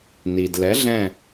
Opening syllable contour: low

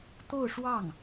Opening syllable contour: falling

